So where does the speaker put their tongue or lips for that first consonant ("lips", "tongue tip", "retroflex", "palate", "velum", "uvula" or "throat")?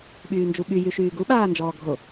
lips